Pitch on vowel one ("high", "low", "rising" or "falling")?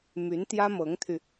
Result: rising